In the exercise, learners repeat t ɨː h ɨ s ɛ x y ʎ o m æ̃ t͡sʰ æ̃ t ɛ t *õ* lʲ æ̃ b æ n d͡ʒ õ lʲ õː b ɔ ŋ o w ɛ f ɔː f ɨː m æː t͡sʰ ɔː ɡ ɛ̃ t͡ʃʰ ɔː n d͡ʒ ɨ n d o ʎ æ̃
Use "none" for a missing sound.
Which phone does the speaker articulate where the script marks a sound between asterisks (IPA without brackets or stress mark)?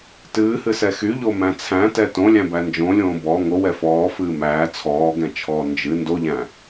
õ